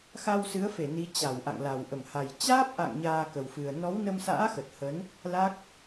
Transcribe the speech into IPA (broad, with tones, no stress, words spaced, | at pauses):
xa˧wsɨ˨˦ə̯fe˧˩ ni˨˦t͡ɕa˧˩wʔa̰˧˨ŋla˨˩w ʔə˧˩mha˨˩j t͡ɕaː˦˥p̚ʔa̰˧˨ŋ ɲaː˧kə˨˩wfɨ˨˩ə̯ nɔ˨˦wnə˧msa̰ː˧˥ xə˨˩t̚hə˨˦n | la˦˥k̚